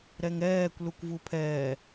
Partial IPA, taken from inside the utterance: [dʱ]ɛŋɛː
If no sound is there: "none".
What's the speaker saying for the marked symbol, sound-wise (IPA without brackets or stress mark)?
ɾ